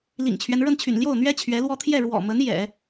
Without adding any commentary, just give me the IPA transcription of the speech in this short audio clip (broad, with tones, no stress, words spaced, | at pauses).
lḭ˨˩ŋt͡ɕʰɥɛ˦n ɻə˥˩nt͡ɕʰy̰˨˩n ljo˥˩ʊ̯n̪ɥɛ˥ t͡ɕʰɥɛ˧˥lwɔ˥ t̪ʰjɛ˥˩ ɻwɔ̰˨˩mə˧˥n jɛ̰˨˩˦